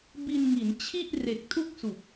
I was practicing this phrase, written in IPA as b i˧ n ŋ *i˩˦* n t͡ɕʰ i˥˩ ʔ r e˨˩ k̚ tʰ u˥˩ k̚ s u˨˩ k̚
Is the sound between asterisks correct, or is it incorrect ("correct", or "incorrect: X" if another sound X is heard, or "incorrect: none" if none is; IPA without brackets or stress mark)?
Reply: correct